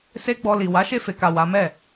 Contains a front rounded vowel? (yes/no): no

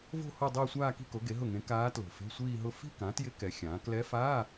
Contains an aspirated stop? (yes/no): no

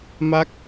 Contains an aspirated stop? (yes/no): no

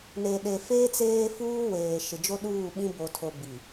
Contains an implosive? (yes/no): yes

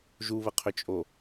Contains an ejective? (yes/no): yes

